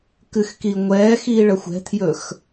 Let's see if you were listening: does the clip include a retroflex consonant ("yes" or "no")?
yes